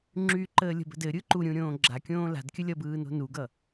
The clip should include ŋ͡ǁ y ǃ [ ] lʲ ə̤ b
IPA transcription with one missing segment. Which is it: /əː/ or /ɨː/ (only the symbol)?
əː